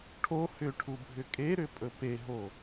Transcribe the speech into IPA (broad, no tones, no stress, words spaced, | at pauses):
ʈʰo hʏʈʰubʱʏ kʼeɾʏpʼɵ peɦo